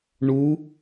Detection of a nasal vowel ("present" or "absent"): absent